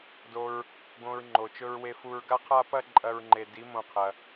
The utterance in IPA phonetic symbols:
d o˧ ɹ | ɡ õ˧ ɹ ŋ͡ǃ o˨ t͡ʃ ɵ˧ ɹ w e˧ f u˧ ɹ ɡ a˦ qʰ a˦ p ɐ˦ ǃʼ ɐ˧ ɹ ŋ͡ǃ e˨ d i˨˦ m õ˧ qʰ ɐ˧

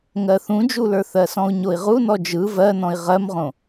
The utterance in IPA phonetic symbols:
ŋ ɜ θ ũ d͡ʒ u l ə˞ θ ɜ s ɔ̃ u̯ ɲ o i̯ ʁ u n ɔ d͡ʒ ɯ v ɜ n ɔ̃ i̯ ʁ ɜ m ʁ õ

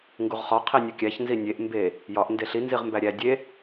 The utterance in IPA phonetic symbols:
ŋ ɡ u ʁ χ ɒ qʰ i nʲ u kʲ æ ç n z i nʲ e ʔ m b e | j ɒ ʔ n d e ɬ i n z i ʁ m b æ ɾʲ æ dʲ e

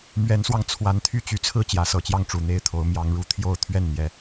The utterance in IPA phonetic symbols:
m ɥ ɛ˨˦ n s w ɑ˧ ŋ t͡sʰ w a˨˦ n t̪ʰ y˥˨ t͡ɕ y˨˦ t͡sʰ ɹ̩˥˨ t͡ɕ j ä˨˦ s ɤ˨˩ t͡ɕ j ɑ˥˨ ŋ ʈ͡ʂ u˨˩ n̪ e˥˨ ɪ̯ t̪ʰ o˨˦ ʊ̯ m j ɑ˨˦ ŋ ɻ u˦ t̪ʰ j o˥˨ ʊ̯ t̪ʰ ɥ ɛ˥˨ n n̪ j ɛ˨˦

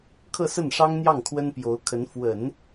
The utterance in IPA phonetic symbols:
kʰ ɤ˥˧ s ə˥˩ n ʂ ɑ˥ ŋ n̪ j ɑ˥˩ ŋ kʰ w ə˥ n p j o˧˥ ʊ̯ kʰ ə˧˥ n f w ə˨˩˦ n

